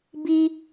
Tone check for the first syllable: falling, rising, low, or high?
high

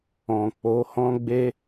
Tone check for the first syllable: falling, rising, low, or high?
low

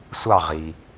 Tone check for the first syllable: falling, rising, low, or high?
falling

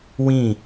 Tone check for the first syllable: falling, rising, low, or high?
falling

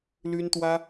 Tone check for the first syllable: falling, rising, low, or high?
high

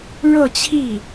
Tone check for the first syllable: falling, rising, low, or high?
falling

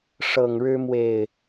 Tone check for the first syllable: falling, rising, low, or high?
low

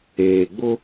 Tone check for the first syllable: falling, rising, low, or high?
low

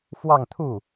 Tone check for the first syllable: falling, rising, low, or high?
falling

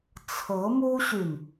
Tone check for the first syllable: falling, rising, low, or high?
rising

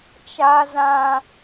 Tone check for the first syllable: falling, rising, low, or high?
low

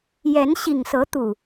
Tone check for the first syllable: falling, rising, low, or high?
rising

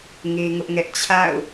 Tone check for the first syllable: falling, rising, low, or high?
high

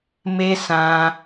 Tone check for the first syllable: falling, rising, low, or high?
high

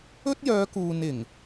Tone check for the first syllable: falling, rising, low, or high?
high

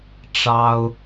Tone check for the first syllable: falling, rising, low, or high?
high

